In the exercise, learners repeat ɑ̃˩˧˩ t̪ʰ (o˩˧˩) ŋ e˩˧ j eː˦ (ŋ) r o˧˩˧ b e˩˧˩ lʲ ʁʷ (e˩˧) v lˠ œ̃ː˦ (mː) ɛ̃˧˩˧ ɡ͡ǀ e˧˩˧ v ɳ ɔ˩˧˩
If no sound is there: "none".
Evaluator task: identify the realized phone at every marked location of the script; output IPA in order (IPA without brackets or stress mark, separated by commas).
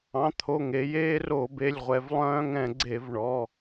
o˩˧˩, none, ɛ˩˧, ŋ